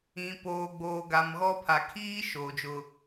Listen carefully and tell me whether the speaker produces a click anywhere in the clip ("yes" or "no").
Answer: no